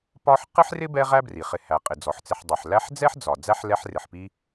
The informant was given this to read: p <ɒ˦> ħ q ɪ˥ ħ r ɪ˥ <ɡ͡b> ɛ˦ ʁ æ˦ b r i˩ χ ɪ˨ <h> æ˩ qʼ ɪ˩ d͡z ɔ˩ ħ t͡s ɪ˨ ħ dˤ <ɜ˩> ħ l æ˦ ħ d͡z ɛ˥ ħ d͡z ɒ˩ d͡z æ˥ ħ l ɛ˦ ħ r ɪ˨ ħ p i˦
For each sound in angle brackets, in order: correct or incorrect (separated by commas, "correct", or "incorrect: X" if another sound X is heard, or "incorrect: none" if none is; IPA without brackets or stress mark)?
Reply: correct, incorrect: b, correct, incorrect: ɛ˩